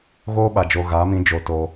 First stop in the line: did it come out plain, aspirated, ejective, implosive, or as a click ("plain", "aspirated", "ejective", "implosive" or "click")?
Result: implosive